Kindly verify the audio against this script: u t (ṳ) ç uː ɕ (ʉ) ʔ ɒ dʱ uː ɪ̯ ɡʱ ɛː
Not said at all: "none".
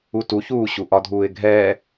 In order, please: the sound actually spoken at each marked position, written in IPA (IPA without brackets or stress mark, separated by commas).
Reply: u, u